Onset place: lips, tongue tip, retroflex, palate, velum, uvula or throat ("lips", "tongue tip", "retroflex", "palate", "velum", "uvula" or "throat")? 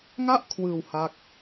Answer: velum